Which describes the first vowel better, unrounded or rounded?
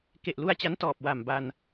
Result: unrounded